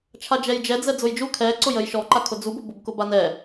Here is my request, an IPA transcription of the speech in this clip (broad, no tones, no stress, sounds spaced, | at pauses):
t͡ʃʰ a d͡ʒ ɛ j d͡ʒ ɛ d͡z ɛ d͡z ʊ j d͡ʒ u kʰ ɛ ǀ ʊ j ə j ʃ ɔ ǃ a kʰ ʊ d͡z u b ʊ b ʊ b k ʊ b a n ɛ